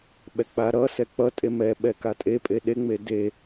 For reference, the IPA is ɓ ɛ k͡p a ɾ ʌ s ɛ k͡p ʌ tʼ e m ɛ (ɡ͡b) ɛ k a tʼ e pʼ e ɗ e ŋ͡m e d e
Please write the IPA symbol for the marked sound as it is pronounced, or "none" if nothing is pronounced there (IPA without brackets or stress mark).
ɓ